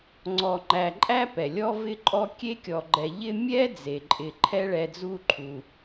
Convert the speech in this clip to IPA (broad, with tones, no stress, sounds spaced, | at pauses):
ŋ͡ǀ ɔ˨ ŋ͡ǃ æ˨ ǃʼ æ˥ p ɛ˩ lʲ ɔ˥ v ɪ˥ ǃʼ ɔ˥ kʲ e˥ kʲ ɔ˨ ɡ͡ǃ ɛ˨ ʎ ɪ˦ mʲ ɛ˥ d͡z e˩ ǃʼ ɪ˨ ǃʰ ɛ˦ ɭ ɛ˨ d͡z u˦ ǃʰ u˩